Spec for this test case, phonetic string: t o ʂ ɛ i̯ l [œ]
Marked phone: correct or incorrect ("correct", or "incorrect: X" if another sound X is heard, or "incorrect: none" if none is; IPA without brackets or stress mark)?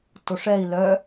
correct